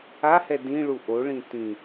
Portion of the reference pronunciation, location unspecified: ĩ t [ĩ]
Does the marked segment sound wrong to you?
no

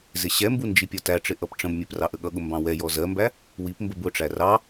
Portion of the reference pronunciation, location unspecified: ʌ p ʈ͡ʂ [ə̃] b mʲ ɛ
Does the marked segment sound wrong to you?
no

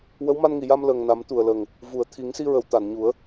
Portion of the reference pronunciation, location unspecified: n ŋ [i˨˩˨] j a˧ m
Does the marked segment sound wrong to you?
no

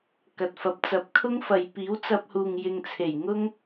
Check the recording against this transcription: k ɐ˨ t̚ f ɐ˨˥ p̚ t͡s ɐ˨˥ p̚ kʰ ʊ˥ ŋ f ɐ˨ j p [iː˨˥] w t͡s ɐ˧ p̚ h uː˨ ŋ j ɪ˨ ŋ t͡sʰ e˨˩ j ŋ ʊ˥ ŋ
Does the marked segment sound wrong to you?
no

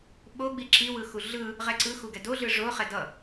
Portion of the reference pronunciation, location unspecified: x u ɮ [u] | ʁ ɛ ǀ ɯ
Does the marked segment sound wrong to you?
yes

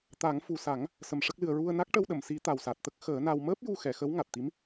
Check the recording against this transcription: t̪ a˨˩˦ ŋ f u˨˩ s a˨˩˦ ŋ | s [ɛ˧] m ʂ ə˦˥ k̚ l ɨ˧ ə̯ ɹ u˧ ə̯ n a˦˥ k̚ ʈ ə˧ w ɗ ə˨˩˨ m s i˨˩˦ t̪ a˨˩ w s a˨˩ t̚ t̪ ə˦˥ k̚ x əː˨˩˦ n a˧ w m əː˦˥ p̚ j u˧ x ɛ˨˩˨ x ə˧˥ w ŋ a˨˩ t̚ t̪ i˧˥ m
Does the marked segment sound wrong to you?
yes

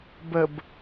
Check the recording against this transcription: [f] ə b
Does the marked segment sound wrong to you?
yes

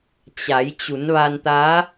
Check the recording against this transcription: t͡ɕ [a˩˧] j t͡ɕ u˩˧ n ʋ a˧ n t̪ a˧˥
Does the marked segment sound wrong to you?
no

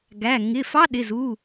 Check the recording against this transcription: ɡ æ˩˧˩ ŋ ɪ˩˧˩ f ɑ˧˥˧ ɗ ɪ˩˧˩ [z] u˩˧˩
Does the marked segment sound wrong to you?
no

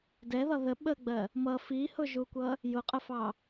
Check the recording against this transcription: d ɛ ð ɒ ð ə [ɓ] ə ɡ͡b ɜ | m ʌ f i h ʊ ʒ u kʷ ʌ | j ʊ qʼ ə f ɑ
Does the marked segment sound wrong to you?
no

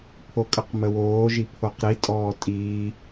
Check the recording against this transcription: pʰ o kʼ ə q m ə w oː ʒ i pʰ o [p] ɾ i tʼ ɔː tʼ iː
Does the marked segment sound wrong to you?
yes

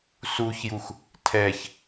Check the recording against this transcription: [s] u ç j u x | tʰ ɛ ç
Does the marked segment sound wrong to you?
no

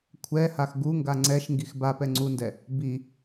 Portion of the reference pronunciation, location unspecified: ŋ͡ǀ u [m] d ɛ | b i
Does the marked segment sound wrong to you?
yes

